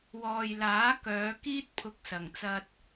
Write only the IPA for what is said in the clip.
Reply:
wɔː˨jlaː˨˥ kœː˨˧kiː˥t̚ pʰʊ˧k̚sɐ˨˩ŋt͡sɐ˧t̚

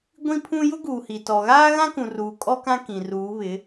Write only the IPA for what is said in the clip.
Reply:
ɡʷĩ˦pʰũ˦ jʊ˦ɡuː˨hi˨tɔ˨ ɣaː˦ɣã˦kũ˨ruː˨ kʼɔ˦kã˦kĩ˨ruː˨˦ βɪ˨˦

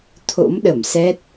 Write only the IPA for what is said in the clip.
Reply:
t̪ʰo̰˧˥mɗə˧˩msɛ˦˥t̚

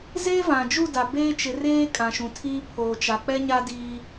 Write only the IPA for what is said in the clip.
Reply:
ze˦ vã˨d͡ʒu˦˨ da˨beː˦t͡ʃɪ˨˦reː˦ kʼã˨ ʃũ˨tʰiː˦ pʰoː˨t͡ʃa˨ k͡pɛ˦ɲa˦diː˦

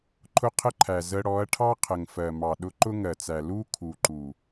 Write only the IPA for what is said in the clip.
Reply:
ǃʰʊ˦qʰə˦ǃʰæ˨ zə˧ ɽɔ˨˦ɐ̯ʈʰɑ˦ qʰə˨ŋfɜ˨mɑ˨ ɗʊ˧ǃʊ˦ŋɜ˨t͡sæ˨ lu˦ kʰu˨ǃu˨

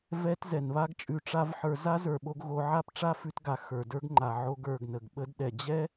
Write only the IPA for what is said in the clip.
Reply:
vɛ˧t zɛ˨nβa˦ɡt͡ʃʼʉ˧ ʈ͡ʂa˦vħə˞˧ za˦zə˞˨ɓo˧ɡ ɣo˧ ʕa˦pʈ͡ʂa˦fʉ˧tɡa˨ xə˞˨də˞˦ɡŋ͡ǃa˨ ʕo˧ɡ ə˞˨ɡnə˨ɡɓə˧dɗɛ˨ d͡ʑɛ˦

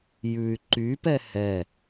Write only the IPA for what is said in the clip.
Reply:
jʉy̯ ǃypɛ hɛ

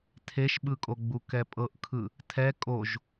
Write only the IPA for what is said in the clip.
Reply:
tʰeʃɓɯkʼoɡ͡bu kɛpʼɤʔkʰɯ | tʰɛ kʼoʒ

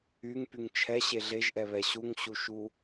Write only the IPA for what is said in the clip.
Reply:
yŋpyŋ t͡ʃʰɛɕe ɮeʒʔɛβɛ ɕuŋɕuʃu

